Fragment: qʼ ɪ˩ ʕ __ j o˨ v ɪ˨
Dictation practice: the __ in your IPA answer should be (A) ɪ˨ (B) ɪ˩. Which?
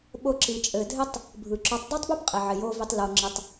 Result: B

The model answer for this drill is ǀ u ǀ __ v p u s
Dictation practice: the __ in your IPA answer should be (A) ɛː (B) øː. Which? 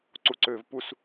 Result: B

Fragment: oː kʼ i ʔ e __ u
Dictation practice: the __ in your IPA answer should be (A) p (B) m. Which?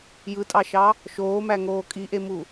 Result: B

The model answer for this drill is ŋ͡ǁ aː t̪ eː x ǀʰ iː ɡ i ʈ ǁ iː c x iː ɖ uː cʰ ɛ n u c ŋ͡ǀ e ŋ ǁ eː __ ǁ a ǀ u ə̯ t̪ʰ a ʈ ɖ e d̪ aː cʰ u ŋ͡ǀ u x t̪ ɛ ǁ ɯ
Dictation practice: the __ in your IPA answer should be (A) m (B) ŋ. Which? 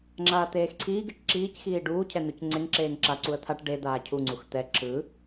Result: B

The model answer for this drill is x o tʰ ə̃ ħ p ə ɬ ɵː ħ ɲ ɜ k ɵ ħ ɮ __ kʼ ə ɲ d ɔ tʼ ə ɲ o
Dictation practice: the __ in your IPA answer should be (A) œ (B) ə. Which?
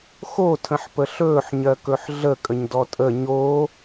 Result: B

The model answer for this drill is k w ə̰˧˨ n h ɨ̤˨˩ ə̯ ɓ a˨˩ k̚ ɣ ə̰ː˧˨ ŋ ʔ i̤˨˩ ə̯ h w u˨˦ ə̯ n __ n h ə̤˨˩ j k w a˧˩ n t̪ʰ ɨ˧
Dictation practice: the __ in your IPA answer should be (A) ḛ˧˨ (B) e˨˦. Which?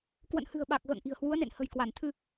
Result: A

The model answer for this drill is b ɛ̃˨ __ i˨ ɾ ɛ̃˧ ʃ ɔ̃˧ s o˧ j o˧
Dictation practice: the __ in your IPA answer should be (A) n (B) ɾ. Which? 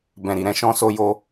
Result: B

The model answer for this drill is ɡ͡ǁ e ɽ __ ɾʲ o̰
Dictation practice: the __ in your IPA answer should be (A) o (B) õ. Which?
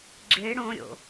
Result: B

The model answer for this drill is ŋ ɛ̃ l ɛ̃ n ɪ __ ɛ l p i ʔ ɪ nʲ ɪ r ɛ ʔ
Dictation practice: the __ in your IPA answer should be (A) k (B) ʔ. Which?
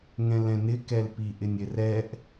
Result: A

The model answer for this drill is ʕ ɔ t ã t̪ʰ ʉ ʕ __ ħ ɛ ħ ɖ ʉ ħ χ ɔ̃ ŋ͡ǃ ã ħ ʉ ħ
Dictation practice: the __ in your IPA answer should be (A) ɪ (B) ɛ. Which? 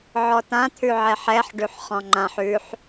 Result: B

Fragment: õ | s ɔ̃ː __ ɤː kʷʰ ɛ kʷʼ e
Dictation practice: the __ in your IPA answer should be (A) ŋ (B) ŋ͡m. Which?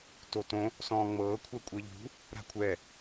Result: B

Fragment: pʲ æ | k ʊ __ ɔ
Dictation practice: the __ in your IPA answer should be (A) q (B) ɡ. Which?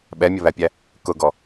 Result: B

